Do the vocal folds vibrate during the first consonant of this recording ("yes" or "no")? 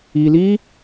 yes